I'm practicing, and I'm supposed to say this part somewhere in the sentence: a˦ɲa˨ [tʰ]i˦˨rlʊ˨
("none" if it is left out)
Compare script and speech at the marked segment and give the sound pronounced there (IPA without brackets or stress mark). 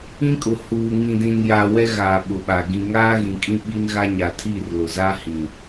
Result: tʰ